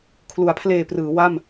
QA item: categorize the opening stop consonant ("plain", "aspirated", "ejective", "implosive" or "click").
aspirated